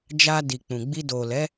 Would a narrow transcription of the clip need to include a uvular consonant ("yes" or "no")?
no